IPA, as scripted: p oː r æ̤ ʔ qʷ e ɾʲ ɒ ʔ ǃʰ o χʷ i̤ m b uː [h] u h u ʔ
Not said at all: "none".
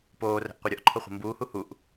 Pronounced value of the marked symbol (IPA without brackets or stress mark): h